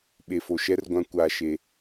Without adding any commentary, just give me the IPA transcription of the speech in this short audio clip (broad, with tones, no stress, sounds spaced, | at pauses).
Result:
ɓ e˨ f o˨ ʃ ɛ˦ r ɡʷ ã˦ kʷ aː˦ ʃ e˦